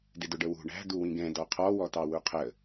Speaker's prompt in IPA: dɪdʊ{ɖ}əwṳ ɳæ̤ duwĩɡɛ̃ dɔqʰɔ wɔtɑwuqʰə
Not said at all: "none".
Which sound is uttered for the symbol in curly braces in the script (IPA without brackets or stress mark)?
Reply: ɖ